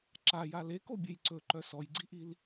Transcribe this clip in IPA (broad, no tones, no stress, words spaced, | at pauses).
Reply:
ǁaja lekobʲej ǀɵǃœ sɔjɡ͡ǀiʔil